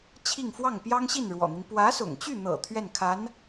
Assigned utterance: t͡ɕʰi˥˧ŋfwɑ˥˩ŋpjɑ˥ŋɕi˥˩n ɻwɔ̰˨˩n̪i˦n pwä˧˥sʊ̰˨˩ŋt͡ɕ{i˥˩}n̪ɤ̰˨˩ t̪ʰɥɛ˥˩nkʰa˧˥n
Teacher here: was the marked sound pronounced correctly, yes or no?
no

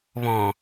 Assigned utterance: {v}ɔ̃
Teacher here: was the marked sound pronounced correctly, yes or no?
no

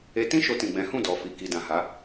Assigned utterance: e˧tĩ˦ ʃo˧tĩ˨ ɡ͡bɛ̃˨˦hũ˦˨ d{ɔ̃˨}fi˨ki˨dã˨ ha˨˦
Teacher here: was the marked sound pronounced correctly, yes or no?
no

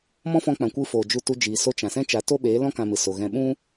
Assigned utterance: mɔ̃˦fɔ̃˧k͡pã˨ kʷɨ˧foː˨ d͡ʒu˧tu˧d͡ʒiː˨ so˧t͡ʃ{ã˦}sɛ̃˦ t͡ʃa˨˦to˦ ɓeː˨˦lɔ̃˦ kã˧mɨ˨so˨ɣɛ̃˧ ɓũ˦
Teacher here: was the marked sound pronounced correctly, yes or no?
no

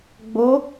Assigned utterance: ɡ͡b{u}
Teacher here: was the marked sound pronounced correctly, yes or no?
no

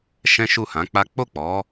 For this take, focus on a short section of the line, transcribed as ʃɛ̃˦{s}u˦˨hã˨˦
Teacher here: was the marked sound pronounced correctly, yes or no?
no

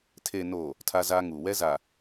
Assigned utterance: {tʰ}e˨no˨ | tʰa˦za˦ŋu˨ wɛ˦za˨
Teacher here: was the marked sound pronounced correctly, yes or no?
yes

